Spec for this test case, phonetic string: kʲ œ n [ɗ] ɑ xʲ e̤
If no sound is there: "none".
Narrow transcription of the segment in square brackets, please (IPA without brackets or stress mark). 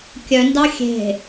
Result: d